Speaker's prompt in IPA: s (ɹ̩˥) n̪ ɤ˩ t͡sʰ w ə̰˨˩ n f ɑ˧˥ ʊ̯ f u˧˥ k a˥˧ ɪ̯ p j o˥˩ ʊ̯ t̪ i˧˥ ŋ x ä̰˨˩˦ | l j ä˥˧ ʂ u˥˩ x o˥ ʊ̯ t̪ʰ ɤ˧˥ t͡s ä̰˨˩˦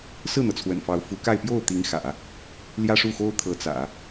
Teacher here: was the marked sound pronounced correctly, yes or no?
no